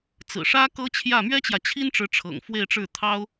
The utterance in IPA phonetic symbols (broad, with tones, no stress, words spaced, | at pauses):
t͡sɹ̩˨˩ʂä˥ kɤ˥t͡ɕʰjä˥˩ mɥɛ˥t͡ɕjä˨t͡ɕʰi˥nʈ͡ʂɻ̩˧˥ ʈ͡ʂʰɤ̰˨˩ŋfwe˥˧ɪ̯ʈ͡ʂɻ̩˥˩ t̪ʰɑ˥ʊ̯